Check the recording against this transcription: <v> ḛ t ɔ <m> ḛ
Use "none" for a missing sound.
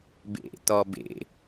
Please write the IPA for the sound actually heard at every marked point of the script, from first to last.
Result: b, b

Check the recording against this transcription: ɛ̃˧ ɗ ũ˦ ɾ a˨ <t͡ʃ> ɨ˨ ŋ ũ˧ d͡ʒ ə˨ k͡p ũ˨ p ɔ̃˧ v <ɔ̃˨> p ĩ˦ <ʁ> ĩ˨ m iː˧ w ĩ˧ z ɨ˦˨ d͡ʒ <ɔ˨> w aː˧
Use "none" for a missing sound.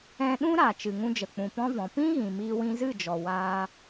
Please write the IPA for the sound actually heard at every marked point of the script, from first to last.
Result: t͡ʃ, ɔ̃˨, ɣ, ɔ˨

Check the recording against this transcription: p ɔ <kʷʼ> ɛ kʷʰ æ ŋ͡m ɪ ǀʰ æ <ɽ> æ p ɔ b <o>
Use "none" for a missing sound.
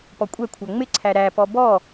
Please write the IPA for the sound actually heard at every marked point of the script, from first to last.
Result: kʷʼ, ɾ, ɔ

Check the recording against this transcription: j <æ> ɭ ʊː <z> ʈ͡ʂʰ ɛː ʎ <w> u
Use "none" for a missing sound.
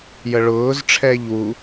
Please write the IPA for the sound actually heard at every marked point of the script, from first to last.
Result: ə, z, w

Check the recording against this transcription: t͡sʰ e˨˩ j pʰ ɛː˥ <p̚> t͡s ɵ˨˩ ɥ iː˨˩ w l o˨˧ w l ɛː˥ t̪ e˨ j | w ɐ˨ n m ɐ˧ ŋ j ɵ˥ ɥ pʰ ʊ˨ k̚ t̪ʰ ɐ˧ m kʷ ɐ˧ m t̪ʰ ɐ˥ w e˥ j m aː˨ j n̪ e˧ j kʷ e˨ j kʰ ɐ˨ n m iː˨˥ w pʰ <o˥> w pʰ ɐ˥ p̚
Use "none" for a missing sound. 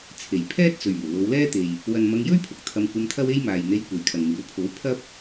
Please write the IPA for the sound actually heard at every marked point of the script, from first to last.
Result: t̚, o˨˥

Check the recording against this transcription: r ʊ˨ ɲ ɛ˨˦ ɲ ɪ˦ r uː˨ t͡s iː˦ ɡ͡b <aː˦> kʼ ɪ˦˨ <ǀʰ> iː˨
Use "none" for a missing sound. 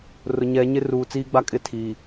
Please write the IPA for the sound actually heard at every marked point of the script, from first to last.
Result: a˦, tʰ

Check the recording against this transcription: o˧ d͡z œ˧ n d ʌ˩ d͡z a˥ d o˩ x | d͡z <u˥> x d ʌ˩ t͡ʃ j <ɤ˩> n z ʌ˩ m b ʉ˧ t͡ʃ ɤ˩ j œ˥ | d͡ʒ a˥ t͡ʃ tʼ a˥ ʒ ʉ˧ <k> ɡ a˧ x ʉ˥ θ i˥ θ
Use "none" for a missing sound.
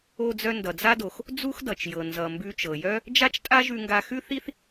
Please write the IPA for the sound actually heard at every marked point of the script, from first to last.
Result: u˥, ɤ˩, ŋ

